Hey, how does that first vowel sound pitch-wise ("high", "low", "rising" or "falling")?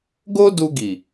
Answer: high